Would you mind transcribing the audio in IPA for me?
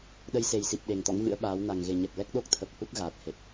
ɗ ə˧ j s e˨˩ j s i˨˩ p̚ ɗ e˨˩ ŋ t̪ ɔ̰˧˥ ŋ v ɨ̰˧˥ ə̯ ɓ aː˨˦ w n a˨˩ ŋ ɣ e˨˩ ɲ ɛ˨˩ p̚ l ɛ˦˥ k̚ ɗ o˦˥ k̚ t̪ʰ ə˨˩ p̚ h u˦˥ t̚ ɣ aː˨˩ t̚ h e˨˩ t̚

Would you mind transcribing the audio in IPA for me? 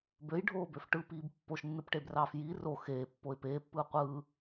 b ø j ɖʱ oː b ø f ʈ ɯ p iː b pː o ʃ nː ɯ p ʈ e b r ɑː f j i r o x eː pː o ɪ̯ p eː pː ɯː qʷ ɯː

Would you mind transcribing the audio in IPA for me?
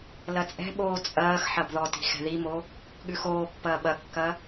l ɐ t͡sʼ ɛ̤ ɓ oː t͡sʼ ɐː x ħ ɐ b ð ɔ t i̤ x ɛ̤ ð i m o | ɠ ʉ x oː pː ɐː ɓ ɐ kː ɐ

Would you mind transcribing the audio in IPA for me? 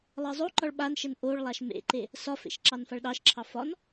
lˠ ɜ zˤ o ǃ ɒ ɭ ɓ a n ʃ ə n ʔ o ɭ lˠ a ʃ m ḛ ǃ e | s ɒ f ḛ ʃ ǁ ɑ n f a ɭ ɗ ɑ ʃ ǁʰ ɑ f ɒ n

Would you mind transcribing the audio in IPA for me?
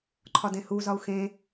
ǃʰ ɒ d ẽ h u z ɒ u̯ x ẽ

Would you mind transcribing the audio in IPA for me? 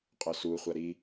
qʼ œ s u χʷ a ɾ i

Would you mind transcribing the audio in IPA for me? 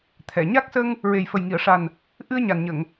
t̪ʰ ɛ˨˩˨ ɲ a˦˥ k̚ s ə˧ ŋ | ɹ e˨˩ j f ə˨˩ j ŋ i˨˩˨ ə̯ ʂ a˨˩ n | ʔ ɨ˧ ə̯ ɲ a˨˩ n ɲ ə˨˩˨ ŋ

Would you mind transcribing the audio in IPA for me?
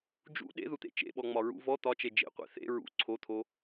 d͡ʒ ṵ ɗ ḛ ð u t̪ ḛ t͡ʃ ḛ ɓ ɔ ŋ͡m ɒ ɹ ṵ v ɔ t̪ ɒ t͡ʃ e d͡ʒ ḛ qʷ ḛ θ ḛ ɹ ṵ ǀʰ o t̪ʰ o

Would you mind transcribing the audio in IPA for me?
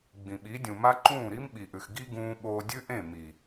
ɡ͡b ĩ˨ ɓ i˨˦ dʲ ũ˨ m a˦ ǃ ũː˦˨ ɾ i˦ m ɓ i˨ ʔ ʉ˨ x ɡ i˦ ɡ ũː˦ ɓ oː˧ dʲ ʉ˦ ʔ ẽ˦˨ m i˨

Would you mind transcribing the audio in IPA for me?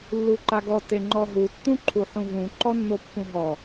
lː u ǃ a ɡ ɔ t e ŋ͡ǃ ɔ ɦ u tː ũ ǃʰ u ħ ũ v ũ ǃ ɔ nː o pː ũ ɦ ɔ

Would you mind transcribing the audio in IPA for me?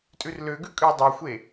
tʼ ʉ r l ø ɡ ʉ kʼ ʉ dˤ o xʷ e

